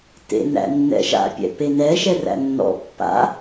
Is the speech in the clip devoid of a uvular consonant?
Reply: yes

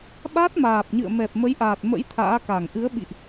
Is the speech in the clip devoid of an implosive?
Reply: no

